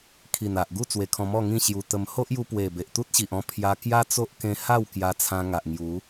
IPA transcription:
kʰ i˨˩ n a˨ ʔ ɡ u˥˧ t͡s w e˧ kʰ ɔ̃˧ m ɔ˥˧ ŋ ĩ˥˧ ɕ j u˧ t̪ ə˧ m h o˦ ʔ j u˧ p w e˨˩ b e˨ ʔ t̪ u˦ t̚ ɕ i˨ ʔ ɔ̃˧ pʰ j a˧ k j a˦ t͡s o˦ ʔ k ẽ˧ h a˥˧ w k j a˧ t͡sʰ ã˧ ŋ a˨ ʔ ŋ j u˨˦

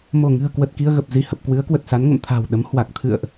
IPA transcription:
m o˧˩ ŋ ɨ̤˨˩ ə̯ k w ə˨˩ t̚ k i˧ ə̯ ɣ ə˨˩ p̚ z i˧˩ h ə˨˩ p̚ k w ɨ˨˦ ə̯ k w ə˨˩ t̚ s a˨˦ n ŋ ə̰˧˨ m t̪ʰ a̤˨˩ w ɗ ə˨˦ m h w a˨˩ k̚ t̪ʰ ɨ̰˧˨ ə̯ ʔ

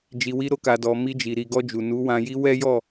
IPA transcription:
d͡ʒ i˨ w i˧ ɾ o˧ k a˨ d ɔ˨ m i˧ d͡ʒ i˨ ɾ i˨ ɡ ɔ˧ d͡ʒ u˨ n u˨˦ w ã˧ j i˦ w ɛ˦ j ɔ˦˨

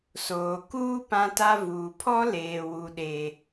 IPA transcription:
s oː˨ k uː˦ p ã˦ t a˦ v uː˨ pʰ ɔ˦ l eː˨ w u˦ ɗ e˦

